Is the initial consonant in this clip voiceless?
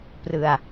yes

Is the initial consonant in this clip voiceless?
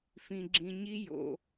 yes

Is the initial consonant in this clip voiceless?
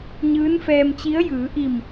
no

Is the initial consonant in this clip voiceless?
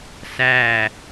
yes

